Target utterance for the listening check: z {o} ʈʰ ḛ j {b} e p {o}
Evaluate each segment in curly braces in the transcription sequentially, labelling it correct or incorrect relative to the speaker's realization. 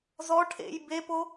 incorrect, correct, correct

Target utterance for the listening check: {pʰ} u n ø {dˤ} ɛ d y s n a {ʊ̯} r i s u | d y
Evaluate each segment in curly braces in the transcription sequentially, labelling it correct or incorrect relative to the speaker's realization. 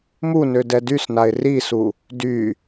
incorrect, incorrect, incorrect

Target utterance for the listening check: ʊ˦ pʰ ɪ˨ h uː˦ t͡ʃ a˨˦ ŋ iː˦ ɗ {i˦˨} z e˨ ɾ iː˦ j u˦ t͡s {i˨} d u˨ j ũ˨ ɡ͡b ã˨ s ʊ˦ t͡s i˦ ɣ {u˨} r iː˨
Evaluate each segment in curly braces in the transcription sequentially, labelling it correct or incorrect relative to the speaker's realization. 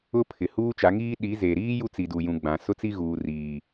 incorrect, correct, incorrect

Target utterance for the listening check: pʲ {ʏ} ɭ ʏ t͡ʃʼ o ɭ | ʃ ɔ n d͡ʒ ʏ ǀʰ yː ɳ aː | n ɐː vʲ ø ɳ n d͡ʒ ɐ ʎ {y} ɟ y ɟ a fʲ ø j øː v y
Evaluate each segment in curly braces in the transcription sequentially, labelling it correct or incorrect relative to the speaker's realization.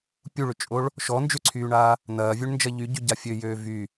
incorrect, correct

